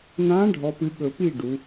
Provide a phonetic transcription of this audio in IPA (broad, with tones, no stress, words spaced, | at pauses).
n̪ã˨˦ ɖʱɔ˨˦pɨ˨˦ ɠɵ˨˩˦pi˥˩ ɖu˨˦